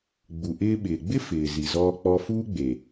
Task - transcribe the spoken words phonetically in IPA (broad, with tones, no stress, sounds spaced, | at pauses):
ɡ͡b u˨ ʔ ɪː˧ ɓ ɪː˨ ɡ͡b ɪ˦ f ɪː˨ z i˨ z ɔː˧ k͡p ɔ˧ f uː˦ ɡ͡b e˨